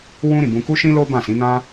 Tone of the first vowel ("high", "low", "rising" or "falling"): high